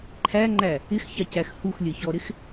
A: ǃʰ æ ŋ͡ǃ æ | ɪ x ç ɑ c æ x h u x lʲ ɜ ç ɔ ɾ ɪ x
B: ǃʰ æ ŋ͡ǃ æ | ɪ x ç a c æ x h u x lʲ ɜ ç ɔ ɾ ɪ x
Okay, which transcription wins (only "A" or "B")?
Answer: A